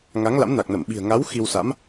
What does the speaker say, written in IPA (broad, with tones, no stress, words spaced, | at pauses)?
ŋa˨˦ŋla̰˧˥mna˨˩k̚nə˧˩m ɓi̤˨˩ə̯ŋa˨˦w xi˧wsa̰˧˥m